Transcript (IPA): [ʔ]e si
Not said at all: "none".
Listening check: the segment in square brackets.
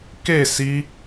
k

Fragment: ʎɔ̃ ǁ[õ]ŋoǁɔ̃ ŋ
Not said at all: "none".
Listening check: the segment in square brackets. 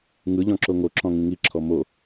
o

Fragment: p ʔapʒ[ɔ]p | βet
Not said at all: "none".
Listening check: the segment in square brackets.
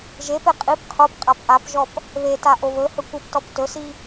ɔ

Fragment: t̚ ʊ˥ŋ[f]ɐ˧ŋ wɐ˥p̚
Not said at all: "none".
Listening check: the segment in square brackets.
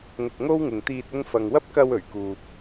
f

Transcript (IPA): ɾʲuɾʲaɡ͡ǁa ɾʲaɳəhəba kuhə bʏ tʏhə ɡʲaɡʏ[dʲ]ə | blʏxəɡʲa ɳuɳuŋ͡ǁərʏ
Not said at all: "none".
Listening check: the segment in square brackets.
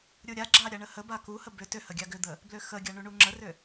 d̪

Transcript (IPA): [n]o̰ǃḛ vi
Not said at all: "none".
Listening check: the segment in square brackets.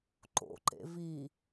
ǃ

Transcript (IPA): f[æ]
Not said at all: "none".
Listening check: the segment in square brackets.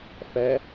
æ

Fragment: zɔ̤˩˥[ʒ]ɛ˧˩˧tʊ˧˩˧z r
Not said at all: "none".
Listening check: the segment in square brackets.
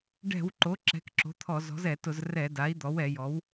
z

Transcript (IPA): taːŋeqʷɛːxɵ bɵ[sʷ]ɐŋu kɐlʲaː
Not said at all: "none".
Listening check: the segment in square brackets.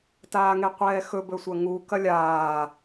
sʷ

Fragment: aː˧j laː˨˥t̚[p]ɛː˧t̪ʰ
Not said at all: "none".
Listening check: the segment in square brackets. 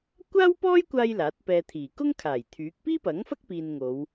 p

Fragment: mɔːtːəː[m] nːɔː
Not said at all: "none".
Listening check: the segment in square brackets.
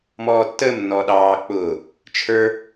m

